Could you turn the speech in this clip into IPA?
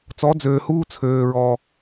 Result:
t͡s ɔ˨˦ d͡z øː˨ h uː˦ t͡sʰ øː˨ ɹ ɔ˨

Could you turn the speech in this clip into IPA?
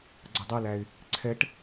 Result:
ɡ͡ǀ ʌ dˤ æ l æ ɪ̯ | ǀʰ ɛ ʈ

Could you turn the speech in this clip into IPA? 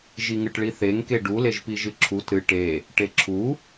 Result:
ʒ i ŋ ɨ ʈ ɭ i θ e ŋ k e ɖ u l e ʒ p i ʒ ɨ ǁʰ u t ɾ ɨ ʈ e | ʈ e ǁʰ u

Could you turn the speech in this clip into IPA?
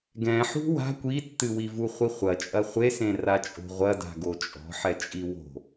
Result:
ɡ ɛ̃ ħ ṳ w a̤ kʷ i tː ɨ w i v u χʷ i χʷ ɐ t͡ʃʼ ɐ χʷ e s ẽ r a t͡ʃʼ o̤ ʁʷ ɐ d a̤ ɡ o t͡ʃʼ ɔ̤ ħ ɛ t͡ʃʼ i w o̤

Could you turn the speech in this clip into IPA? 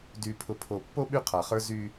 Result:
d y˨ pʰ ʊ˨ pʰ o˨ pː o˦ ɓ y˦ qʰ a˨ χ ə˞˦ z y˦

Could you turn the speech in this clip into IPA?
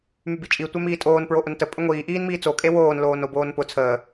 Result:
m y b i t͡ʃʼ i tʷ ɛ m iː tʼ oː n p ɹ o ʔ ʊ n t ə pʼ ə ŋʷ iː ʔ iː n m iː t͡s o kʼ e w oː n l oː n o b oː n p ʊ t͡sʰ əː

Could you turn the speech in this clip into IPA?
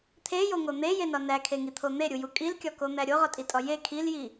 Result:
t̪ʰ e j o ŋ o n̪ e j e n ɒ n æ kʰ e ŋ i t̪ʰ o n̪ e ɾʲ u j u kʼ i l kʲ ɒ k o n̪ æ ɾʲ o ʁ ɒ tʼ i tʼ ɒ j e kʰ i l j i

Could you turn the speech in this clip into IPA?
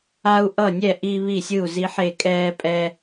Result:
a˦ u̯ ʔ ʌ˥˨ nʲ ɛ˥˨ ʔ i˦ β i˥˨ sʲ ɯ˥˨ u̯ z i˦ ħ e˥˨ kʼ ɛː˦ pʼ ɛː˦

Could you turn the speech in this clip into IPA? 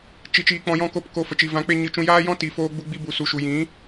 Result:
t͡ʃ i˧ t͡ʃ iː˧ k͡p ɔ̃˧ j ɔ̃˦˨ k o˦ p k o˧ f ə˨ t͡ʃ i˨ v ã˨˦ k͡p e˧ ɲ ɨ˧ t͡ʃ ũ˧ j aː˦ j ɔ̃˦ t i˨ f oː˧ ɡ͡b u˧ ɡ͡b i˧ b u˨ s u˨ ʃ u˨ j ĩ˨˦

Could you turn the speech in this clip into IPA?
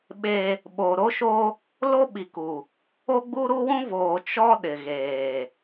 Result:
ɓ e˦ | ɓ o˨ ɾ o˦ ʃ o˦ | l o˦ ɓ i˨ k u˨ | o˦ ɡ͡b u˦ ɾ u˦ w ũ˦ v oː˨ t͡ʃ ɔ˦ ɗ ɪ˨ ɣ eː˨

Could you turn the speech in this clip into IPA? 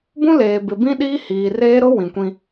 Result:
b ũ˦ l eː˨ b ɪ˨ b ĩ˦ ɗ iː˦ h iː˨ r eː˦ ɾ ʊ˦ w ĩ˨ kʷ ĩ˦

